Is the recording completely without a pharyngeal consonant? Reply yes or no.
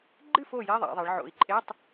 no